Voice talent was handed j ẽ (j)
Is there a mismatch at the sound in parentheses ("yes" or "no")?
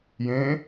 yes